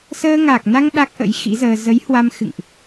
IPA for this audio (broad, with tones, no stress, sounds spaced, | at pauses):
s əː˧ ŋ a˨˩ k̚ n a˧ ŋ ɗ a˦˥ k̚ ʔ ə̰˧˥ j x ḭ˧˥ z əː˧ z ə˨˦ j h w a˧ m x ɨ̰˧˨ ŋ ʔ